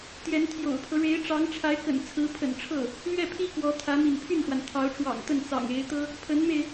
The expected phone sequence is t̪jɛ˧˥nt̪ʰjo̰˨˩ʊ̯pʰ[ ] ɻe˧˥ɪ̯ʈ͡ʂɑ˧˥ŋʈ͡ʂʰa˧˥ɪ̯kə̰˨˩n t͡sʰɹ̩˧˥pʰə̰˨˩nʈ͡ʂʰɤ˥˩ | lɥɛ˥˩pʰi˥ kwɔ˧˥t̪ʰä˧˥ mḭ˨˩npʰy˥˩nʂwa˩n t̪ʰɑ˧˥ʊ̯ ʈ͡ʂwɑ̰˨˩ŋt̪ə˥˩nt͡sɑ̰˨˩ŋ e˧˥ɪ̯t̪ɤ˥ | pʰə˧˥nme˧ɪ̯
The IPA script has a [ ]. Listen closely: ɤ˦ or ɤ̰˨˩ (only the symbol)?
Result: ɤ˦